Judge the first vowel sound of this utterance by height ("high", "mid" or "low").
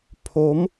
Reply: mid